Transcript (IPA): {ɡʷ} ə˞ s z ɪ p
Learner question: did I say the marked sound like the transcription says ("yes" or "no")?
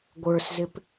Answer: yes